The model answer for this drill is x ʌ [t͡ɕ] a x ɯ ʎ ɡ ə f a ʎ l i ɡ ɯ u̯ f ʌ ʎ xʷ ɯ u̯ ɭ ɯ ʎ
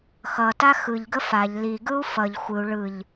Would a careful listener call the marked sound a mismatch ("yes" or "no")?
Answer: yes